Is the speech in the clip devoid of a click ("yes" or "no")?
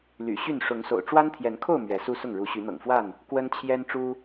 yes